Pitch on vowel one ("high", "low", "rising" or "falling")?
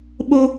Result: high